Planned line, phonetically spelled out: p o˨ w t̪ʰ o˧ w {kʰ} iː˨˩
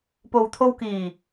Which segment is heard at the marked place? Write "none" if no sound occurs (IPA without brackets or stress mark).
k